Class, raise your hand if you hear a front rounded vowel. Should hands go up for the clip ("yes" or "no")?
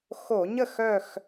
yes